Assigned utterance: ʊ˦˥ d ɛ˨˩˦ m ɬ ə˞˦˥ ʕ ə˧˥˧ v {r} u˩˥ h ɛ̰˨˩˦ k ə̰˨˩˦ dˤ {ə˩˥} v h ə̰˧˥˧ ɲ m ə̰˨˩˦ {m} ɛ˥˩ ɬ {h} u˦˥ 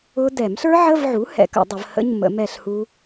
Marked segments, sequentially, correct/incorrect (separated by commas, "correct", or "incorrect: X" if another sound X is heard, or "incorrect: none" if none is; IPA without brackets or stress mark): incorrect: ʕ, incorrect: ə˨˩˦, correct, correct